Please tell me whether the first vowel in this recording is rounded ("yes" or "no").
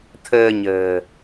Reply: no